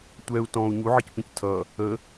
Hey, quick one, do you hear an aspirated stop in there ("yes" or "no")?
yes